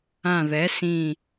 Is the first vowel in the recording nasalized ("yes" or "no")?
yes